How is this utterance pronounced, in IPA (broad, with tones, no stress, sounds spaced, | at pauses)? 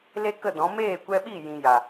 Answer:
l e˦ k ə˦˨ d ɔ̃˨˦ m eː˦˨ kʷ ɛ˧ ɓ i˦˨ j ĩ˧ j a˨